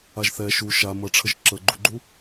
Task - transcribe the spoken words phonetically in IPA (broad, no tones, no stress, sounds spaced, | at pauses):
a ʒ θ ɛ ʃ u ʃ a m ʌ ʈ͡ʂʰ ə ʒ ǁ ə ɡ͡ǃ u ɡ͡ǃ u